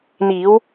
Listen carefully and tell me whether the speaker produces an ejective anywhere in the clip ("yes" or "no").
no